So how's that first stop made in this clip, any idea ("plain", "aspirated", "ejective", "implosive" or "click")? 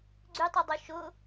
click